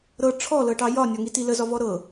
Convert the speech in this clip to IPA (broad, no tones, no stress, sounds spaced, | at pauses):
ɾ ɤ ʈ͡ʂʰ ɔ l ɤ ʈ ɑ j ɒ nʲ ɒ ŋ i t i l ə z ɒ v ɔ ɾ ɤ